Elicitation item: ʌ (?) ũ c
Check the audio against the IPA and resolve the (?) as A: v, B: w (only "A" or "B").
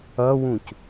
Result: B